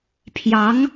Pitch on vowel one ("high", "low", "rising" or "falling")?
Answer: rising